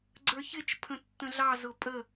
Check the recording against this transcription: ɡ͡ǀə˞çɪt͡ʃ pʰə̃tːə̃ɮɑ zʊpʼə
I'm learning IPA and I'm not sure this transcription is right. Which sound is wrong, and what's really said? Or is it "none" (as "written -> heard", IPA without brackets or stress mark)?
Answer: none